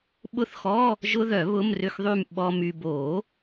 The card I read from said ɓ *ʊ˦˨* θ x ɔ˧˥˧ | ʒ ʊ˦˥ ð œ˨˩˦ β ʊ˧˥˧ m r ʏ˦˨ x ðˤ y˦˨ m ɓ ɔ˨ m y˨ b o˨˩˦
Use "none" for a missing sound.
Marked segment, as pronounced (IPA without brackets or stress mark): ʊ˦˨